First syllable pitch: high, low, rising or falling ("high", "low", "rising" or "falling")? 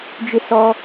high